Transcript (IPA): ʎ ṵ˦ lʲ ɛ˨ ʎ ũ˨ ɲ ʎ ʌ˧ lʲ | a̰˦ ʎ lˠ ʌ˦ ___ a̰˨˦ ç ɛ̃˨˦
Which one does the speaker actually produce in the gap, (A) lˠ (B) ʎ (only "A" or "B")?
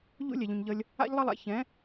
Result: A